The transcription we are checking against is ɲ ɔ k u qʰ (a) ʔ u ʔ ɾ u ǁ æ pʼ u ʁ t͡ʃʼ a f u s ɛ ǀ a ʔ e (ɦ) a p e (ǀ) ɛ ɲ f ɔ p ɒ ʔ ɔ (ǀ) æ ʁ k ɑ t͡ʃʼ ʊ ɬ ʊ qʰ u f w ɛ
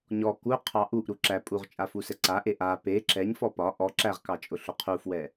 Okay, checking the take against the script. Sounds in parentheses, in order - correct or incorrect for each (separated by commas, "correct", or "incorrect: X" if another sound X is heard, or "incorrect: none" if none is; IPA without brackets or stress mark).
incorrect: ɑ, incorrect: ʔ, incorrect: ǁ, incorrect: ǁ